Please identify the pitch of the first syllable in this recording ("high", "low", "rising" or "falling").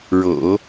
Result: low